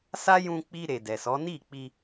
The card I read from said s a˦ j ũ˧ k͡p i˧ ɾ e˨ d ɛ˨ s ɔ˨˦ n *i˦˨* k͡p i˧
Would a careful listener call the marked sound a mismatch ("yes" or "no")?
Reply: no